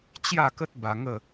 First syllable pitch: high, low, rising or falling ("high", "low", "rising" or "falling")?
falling